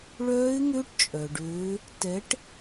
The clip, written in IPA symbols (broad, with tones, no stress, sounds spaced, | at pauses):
ɭ œː˦˥ ɪ̯ ŋ ø˦˥ ʈ t͡ʃʼ œ˩ ɖ øː˨˥ | t ɛ˨˥ ʈ